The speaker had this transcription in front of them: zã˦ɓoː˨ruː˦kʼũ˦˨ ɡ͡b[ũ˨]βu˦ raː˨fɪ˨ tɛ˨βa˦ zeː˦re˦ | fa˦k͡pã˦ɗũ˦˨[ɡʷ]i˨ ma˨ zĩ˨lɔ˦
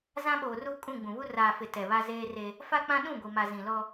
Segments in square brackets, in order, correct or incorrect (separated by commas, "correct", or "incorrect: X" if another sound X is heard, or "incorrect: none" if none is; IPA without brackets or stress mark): correct, correct